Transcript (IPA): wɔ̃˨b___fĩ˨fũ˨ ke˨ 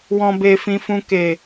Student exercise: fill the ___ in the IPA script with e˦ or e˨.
e˨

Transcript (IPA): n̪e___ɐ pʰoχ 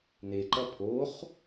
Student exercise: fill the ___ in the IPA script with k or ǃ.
ǃ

